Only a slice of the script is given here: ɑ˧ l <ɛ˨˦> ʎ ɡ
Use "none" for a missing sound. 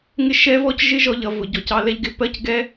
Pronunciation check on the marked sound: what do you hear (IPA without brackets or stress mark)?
ɛ˦